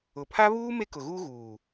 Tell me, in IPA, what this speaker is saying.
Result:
ʊ˨ pʰ a˦ β uː˦ m e˦ k ʊ˨ ɣ uː˦ ɣ uː˨

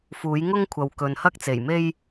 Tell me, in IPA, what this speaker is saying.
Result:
f uː˨˥ j ŋ ʊ˥ ŋ kʷʰ ɐ˨ w k ɵ˨ n h ɐ˥ k̚ t͡s e˨˩ j m e˥ j

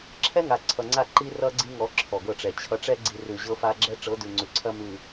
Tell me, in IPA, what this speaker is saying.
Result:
ǁʰ ɛ˦ ŋ a˨ ǀʰ ʌ˨ ŋ͡ǀ a˦˨ ǃ i˦ r ʌ˦ ɡ͡ǀ i˦ ŋ ɔ˨˦ ǁʰ ɔ˨ ɡ ɤ˦˨ ʈ͡ʂ ɛ˨ t͡ɕʰ ʌ˨ ʈ͡ʂ ɛ˦ ɡ͡ǀ i˨ r ʉ˨ ʑ ɤ˦ f a˦ ɡ͡ǁ ɛ˦ ʈ͡ʂ ɤ˨˦ d ʉ˨ ŋ͡ǀ ʉ˨ ǀʰ ɐ˦ m ʉ˨

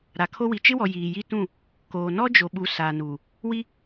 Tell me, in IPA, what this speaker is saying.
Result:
ɾ a˨ kʰ o˦ w i˨ t͡ʃ ɪ˦ w ɔ˨ j iː˨ j i˦ t ũ˦˨ | k oː˨ n ɔ˦ d͡ʒ o˨ ɓ u˨ s aː˨ n uː˨ | w i˦

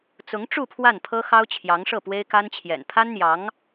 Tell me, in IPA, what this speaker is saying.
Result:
t͡s ʊ˧˥ ŋ ʈ͡ʂ u˥˧ pʰ w a˥˩ n pʰ ɤ˥ x ɑ˥ ʊ̯ t͡ɕʰ j ɑ˧˥ ŋ ʂ ɤ˥˩ p w e˥ ɪ̯ k a˥ n t͡ɕʰ j ɛ̰˨˩ n pʰ a˥ n n̪ j ɑ˧˥ ŋ

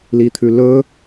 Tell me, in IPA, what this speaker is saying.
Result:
l i t̪ʰ ʉ l ɵ

